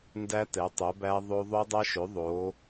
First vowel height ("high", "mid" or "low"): low